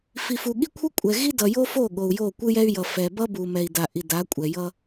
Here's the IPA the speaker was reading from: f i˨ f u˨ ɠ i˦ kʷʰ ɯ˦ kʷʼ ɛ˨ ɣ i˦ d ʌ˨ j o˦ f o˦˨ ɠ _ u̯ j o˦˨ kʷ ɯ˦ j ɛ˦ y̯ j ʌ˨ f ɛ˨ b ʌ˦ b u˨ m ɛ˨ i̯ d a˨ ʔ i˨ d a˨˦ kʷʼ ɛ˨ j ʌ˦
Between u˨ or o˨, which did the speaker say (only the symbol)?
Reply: o˨